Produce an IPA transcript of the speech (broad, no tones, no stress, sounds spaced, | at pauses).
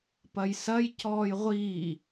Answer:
p ɐ j s ɐ j c ɔː j ʁʷ iː